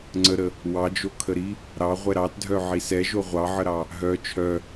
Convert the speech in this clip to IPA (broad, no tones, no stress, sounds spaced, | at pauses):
ŋ͡ǀ ə ɾ ə | w ɑ d͡ʒ o kʰ ə ɾ i | ɾ ɑ ʁʷ ɛ ɾ ɑ t dʱ œ ʕ i s ɛ ʒ o ʁʷ ɑ ʕ ə ɾ ɑ | ɦ œ t͡ʃʰ œ